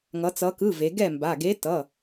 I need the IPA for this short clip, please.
ŋ ʌ˩˧ t͡s ʌ˩˧ k ɯ˩˧˩ v e˩˧ ɡ ɛ˥˩ m b a˩˧˩ ɡ e˨˥ t ʌ˩˧˩

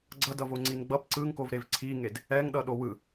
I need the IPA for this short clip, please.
ɡ͡ǀ ʌ d ʌ v o ŋ͡ǀ i n ɡ͡b ʌ p ǀ ɯ ŋ k o v ɾ e v ǀʰ i ŋ e d | ɛ ŋ ɗ ʌ ɗ o w ɯ

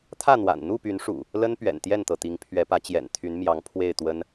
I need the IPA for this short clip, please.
t̪ʰ ä˥˨ n̪ w a̰˨˩ n n̪ u˥˨ p y˨˦ n ʂ ṵ˨˩ | l ə˦ n p ɥ ɛ̰˨˩ n t̪ j ɛ˥˨ n t̪ ɤ˩ t̪ i˨˦ ŋ pʰ ɥ ɛ˨˦ p ä˨˦ t͡ɕ j ɛ̰˨˩ n t̪ʰ y˨˦ n m j ɑ˨˦ ŋ pʰ w e˥˨ ɪ̯ t̪ w ə˦ n

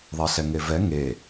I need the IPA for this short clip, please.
ðˤ e ɬ ɛ ŋ e v ɛ ŋ e

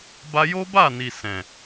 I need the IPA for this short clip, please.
b a˧ j o˦ b a˦˨ n i˨ s ɛ̃˨

